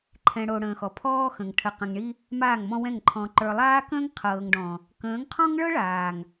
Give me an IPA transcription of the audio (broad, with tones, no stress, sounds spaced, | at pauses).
ǃʰ ɛ̃˨ ɽ o˨ ɽ ə̃ː˨ x ɔ˨ pʰ ɔː˦ x ə̃˨ ŋ ʈʰ ə˨ q ə̃˨ ŋ ɳ i˦ | m aː˦˨ ŋ m ɔ̃˦ w ɛ̃˦˨ ŋ ǃʰ ɔ̃˨ ǃ ə˞˨ lˠ aː˦ k ə̃ː˦ ŋ qʰ ɤː˨ ŋ ɖ ɔ̃˨ | k ə̃ː˨˦ ŋ qʰ ɔ̃˦ ŋ ɭ ɤ˦ ɭ aː˨ ŋ